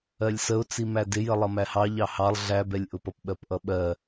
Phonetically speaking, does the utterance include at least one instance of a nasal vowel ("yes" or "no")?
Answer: no